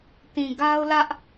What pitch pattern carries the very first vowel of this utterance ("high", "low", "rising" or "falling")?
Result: low